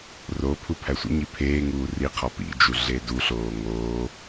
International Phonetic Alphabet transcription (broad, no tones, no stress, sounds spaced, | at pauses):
r o pʰ u pʰ æ sʷ ḭ ɲ i pʰ eː ŋ uː r i qʰ ɒ p ḭ d͡ʒ u ɮ e d u ɬ oː ŋ oː